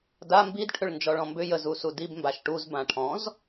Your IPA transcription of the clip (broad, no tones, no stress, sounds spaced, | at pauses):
d a m b i d ʈʰ ʏ ɭ n d͡ʒ ɔ ɭ ɔ̃ m b ʏ j ə z u s u d i b m b a ʃ ʈ u z b ã ʈʰ ɔ̃ z